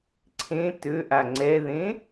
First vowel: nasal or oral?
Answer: nasal